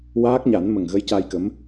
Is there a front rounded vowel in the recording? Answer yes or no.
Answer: no